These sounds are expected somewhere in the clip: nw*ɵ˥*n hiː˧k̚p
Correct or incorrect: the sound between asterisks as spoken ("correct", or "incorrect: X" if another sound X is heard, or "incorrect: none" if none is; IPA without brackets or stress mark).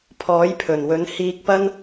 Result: incorrect: ɵ˨˥